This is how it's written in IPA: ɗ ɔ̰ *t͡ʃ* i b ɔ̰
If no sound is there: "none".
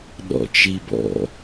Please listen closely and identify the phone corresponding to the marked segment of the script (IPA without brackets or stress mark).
t͡ʃ